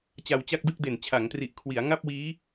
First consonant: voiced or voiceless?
voiceless